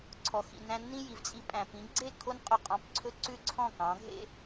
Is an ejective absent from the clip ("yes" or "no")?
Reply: no